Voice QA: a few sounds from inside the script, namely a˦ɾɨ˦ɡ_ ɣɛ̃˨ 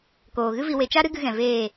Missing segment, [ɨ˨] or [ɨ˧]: ɨ˧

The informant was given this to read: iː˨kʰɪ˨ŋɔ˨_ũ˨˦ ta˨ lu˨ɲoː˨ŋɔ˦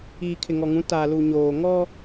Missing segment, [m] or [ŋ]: ŋ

